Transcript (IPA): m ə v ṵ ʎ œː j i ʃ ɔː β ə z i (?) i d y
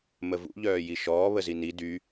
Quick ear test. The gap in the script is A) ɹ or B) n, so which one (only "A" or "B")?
B